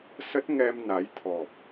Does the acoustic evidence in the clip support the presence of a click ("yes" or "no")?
no